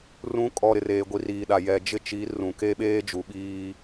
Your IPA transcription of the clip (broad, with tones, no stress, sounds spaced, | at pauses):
r ũ˨˦ kʼ ɔ˨ ɾ ɪ˨ r eː˨ ɡʷ i˨ r iː˨ ɗ a˨ j ɛ˨ d͡ʒ ɪ˦ t͡ʃ i˨˦ r ũ˨ k e˦ ɓ eː˦ d͡ʒ u˨ ɓ iː˦